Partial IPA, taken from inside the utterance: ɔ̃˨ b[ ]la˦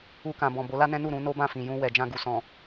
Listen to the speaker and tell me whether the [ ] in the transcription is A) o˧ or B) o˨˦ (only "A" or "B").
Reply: B